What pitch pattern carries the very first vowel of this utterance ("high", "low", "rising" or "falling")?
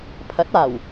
rising